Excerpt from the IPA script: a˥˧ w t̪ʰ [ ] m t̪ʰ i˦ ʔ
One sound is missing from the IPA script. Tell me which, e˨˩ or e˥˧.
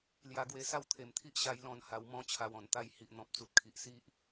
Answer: e˨˩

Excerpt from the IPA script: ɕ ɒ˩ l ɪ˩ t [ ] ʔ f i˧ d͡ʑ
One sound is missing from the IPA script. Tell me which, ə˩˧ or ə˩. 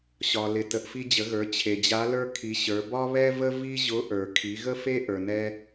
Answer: ə˩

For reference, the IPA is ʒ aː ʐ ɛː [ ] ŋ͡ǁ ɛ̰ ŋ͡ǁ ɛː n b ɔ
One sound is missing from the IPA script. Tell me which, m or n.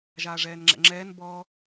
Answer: n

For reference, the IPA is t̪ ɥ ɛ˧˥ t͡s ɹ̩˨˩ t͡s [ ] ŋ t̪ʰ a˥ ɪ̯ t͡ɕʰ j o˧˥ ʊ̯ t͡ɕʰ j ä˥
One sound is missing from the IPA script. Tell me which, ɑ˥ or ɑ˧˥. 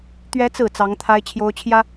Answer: ɑ˧˥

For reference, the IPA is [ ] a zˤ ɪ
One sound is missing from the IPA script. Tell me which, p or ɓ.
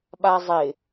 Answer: ɓ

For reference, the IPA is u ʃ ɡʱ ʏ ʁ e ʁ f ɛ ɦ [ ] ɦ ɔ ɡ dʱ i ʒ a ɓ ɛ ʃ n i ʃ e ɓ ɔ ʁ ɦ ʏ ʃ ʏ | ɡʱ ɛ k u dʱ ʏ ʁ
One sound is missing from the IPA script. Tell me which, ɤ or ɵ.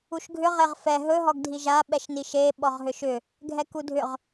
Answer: ɵ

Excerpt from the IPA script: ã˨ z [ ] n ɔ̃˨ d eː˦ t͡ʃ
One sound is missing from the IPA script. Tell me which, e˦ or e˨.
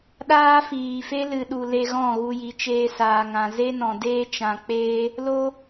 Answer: e˦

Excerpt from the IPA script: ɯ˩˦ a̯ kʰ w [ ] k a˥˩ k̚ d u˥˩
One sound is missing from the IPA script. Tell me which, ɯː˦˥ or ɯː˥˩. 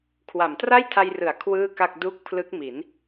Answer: ɯː˥˩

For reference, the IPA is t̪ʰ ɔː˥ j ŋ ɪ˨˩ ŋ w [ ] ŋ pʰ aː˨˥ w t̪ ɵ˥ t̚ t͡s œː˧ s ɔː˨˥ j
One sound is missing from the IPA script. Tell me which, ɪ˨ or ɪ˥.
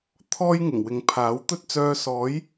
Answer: ɪ˨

